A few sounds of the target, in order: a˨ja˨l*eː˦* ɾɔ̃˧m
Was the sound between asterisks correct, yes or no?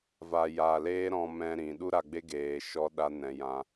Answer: yes